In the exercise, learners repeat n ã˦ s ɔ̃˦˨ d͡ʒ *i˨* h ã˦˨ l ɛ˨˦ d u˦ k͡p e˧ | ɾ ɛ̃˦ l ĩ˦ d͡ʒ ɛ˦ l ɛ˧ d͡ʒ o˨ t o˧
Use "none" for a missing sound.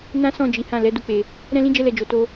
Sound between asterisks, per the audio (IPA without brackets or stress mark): i˨˦